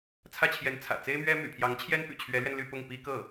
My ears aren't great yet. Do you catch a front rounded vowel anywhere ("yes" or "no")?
yes